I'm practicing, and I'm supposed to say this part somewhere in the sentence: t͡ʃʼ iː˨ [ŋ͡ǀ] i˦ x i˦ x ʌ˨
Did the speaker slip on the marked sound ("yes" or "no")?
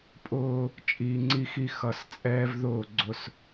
no